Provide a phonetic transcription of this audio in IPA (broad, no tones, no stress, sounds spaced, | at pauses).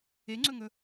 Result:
e ŋ͡ǀ ɵ ŋ ɵ